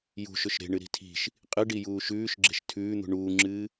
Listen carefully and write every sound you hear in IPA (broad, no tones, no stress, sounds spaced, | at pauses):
j ṳ ʃ ɵ ʃ ɾ e̤ ɳ ɨ ɾ i̤ tʰ i̤ ʃ | qʼ ɨ ɖ i j uː ʃ ʉː ʃ ɡ͡ǁ e̤ ʃ tʰ ʉː n̪ ṳ ɳ uː ŋ͡ǁ ɨː